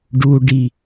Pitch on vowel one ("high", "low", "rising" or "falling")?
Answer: low